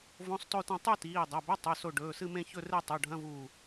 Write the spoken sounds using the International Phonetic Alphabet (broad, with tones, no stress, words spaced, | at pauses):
võ˧˥˧sˤto˥˧tɐ̃˥˧ tˤu˥˧tiː˩˧˩dˤɐ˩˧˩bɵ˧˥˧ tˤʉ˩˧˩so˧˩ ɖɵː˩˧˩sɨ˥˧mẽ˥˧ çɵ˥˧re˥˧ tˤo˩˧˩ɖʱɐ̃˧˥˧vuː˧˩